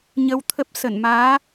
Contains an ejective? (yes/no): no